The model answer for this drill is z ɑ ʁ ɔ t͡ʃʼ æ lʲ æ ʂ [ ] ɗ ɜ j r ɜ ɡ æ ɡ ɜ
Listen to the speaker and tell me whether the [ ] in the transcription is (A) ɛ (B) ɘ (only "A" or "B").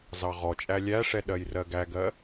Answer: A